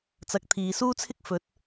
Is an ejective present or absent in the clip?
absent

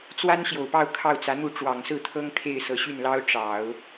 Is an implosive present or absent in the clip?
absent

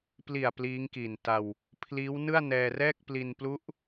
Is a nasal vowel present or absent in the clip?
absent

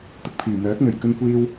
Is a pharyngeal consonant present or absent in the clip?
absent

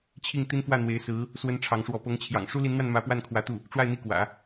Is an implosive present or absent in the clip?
absent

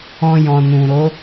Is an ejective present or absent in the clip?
absent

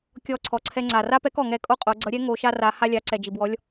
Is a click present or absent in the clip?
present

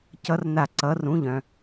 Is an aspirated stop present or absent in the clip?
absent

